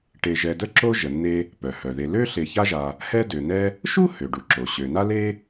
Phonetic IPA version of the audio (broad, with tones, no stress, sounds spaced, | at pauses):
ʈ e˨ ʒ ɛ˨ d ə˥ ǁ o˥ ʒ ə˩ nː e˨ | p œ˩ h œ˩ ð e˨ l ø˦ ɬ e˨ ç a˥ ʒ a˨ | h ɛ˦ d ø˩ n ɛ˦ | ʃ u˥ h ø˩ ɖ u˩ ǁ o˩ ɕ ø˩ n a˥ l e˥